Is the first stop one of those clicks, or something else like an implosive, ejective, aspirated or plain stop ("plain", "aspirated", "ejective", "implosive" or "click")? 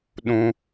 implosive